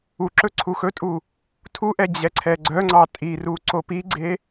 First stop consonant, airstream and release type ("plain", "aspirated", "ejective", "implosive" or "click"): click